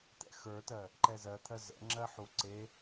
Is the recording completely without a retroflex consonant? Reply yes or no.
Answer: yes